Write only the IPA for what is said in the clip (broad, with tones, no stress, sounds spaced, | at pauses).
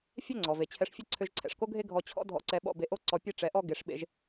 fʲ ɛ˥ ŋ͡ǀ ɔ˩ v e˩ t͡ɕʰ ɛ˧ ʂ fʲ e˥ ǀʰ ø˧ ʒ ǀʰ ɛ̰˩ ʂ k o˥ ɡʱ e˥ ɡʱ ɔ˧ t͡ɕʰ ɔ̰˥ dʱ ɔ̰˧ ǀ ɛ˧ ɓ ɔ̰˧ b e˧ ʔ o˥ ǀ ɔ˧ pʲ e˥ ʈ͡ʂ ɛ˧ ʔ ɔ˥ ɡ e˧ ʂ ɓ ḛ˧ ʒ